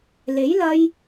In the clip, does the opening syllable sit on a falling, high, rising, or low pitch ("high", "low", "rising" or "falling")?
rising